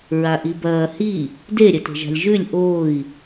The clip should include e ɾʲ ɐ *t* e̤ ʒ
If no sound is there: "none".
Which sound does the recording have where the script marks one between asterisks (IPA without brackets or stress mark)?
t